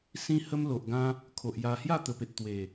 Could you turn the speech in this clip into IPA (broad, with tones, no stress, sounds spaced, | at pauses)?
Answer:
s ĩ˦ h ə˦ m l o˨ ʔ ɡ ã˦ | kʰ o˨ ʔ j a˧ h j a˥˧ t̪ ə˨˩ p e˨ t̚ t̪ w e˨˩